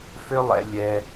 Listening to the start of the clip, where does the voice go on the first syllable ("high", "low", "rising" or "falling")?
high